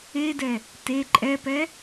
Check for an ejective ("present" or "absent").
present